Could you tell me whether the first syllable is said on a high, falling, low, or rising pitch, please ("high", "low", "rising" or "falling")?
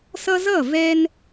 high